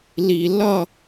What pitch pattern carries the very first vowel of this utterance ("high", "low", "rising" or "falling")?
low